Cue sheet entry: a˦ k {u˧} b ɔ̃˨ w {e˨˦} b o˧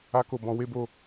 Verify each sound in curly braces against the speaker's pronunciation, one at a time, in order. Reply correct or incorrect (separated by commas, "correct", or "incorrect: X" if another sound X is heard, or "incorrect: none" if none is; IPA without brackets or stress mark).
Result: incorrect: o˧, correct